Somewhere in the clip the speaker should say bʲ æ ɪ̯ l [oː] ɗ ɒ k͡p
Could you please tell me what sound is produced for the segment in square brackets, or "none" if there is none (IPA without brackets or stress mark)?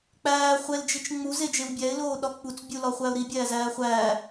oː